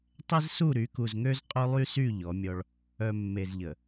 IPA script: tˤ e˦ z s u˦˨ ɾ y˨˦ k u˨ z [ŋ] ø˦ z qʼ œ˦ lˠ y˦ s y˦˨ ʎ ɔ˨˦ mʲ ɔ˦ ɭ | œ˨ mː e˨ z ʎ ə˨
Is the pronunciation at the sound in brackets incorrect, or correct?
correct